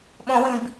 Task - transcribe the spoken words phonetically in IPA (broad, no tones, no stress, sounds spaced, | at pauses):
ɓ õ w ĩ b